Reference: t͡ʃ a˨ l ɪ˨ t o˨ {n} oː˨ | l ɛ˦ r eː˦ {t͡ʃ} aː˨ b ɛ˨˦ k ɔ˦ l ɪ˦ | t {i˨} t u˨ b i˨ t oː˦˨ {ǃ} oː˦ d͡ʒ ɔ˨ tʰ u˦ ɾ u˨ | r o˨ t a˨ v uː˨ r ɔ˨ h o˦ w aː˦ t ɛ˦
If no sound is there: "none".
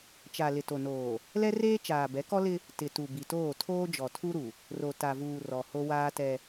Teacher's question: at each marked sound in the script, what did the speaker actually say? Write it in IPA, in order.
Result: n, t͡ʃ, ɪ˨, tʰ

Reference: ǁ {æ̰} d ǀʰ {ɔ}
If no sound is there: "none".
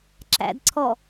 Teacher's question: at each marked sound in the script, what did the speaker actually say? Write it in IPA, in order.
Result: æ̰, ɔ

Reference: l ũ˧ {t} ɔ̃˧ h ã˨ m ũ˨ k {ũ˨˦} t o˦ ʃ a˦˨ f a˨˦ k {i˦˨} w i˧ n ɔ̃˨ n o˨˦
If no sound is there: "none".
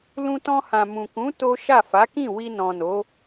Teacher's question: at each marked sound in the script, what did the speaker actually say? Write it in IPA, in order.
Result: t, ũ˨˦, ĩ˦˨

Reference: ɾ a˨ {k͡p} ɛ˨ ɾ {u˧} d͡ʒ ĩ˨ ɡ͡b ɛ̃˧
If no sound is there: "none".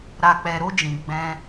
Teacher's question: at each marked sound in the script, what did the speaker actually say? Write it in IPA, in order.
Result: k͡p, o˧

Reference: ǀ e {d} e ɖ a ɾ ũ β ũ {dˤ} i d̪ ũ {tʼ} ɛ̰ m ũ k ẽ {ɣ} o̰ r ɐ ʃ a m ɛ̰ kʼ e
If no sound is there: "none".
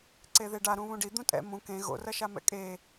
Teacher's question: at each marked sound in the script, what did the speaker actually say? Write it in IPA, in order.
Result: ð, ɖ, tʼ, ɣ

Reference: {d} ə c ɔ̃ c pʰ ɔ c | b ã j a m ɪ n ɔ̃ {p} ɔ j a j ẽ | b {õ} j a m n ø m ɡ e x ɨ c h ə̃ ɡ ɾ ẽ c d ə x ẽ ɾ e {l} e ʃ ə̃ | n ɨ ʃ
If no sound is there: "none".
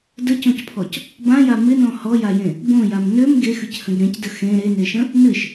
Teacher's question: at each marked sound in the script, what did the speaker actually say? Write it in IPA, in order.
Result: d, h, õ, n

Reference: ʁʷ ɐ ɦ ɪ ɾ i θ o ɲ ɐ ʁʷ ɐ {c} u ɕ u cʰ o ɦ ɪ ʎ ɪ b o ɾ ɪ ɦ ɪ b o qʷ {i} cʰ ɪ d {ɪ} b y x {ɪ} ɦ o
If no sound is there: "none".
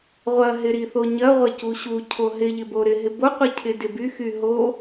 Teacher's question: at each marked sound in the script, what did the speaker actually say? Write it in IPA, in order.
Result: c, i, ɪ, y

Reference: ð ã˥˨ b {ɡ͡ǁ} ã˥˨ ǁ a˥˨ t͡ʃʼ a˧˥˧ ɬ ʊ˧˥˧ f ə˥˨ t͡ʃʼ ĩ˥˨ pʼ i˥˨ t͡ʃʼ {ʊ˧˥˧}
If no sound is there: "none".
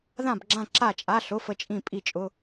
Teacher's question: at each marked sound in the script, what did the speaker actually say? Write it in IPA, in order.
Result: ɡ͡ǁ, ʊ˧˥˧

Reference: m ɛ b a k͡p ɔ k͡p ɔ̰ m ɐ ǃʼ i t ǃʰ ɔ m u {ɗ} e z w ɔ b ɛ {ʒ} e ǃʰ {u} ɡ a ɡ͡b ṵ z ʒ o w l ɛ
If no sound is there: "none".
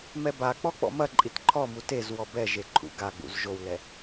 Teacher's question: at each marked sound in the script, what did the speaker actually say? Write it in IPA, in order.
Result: t, ʒ, ṵ

